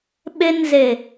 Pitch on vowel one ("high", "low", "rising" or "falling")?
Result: high